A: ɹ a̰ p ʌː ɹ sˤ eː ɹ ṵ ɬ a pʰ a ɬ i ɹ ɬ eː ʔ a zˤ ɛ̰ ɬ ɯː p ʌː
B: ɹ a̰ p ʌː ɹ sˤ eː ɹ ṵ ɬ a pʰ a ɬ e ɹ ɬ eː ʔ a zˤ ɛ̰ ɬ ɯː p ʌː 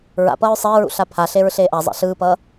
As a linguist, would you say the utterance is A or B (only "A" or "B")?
B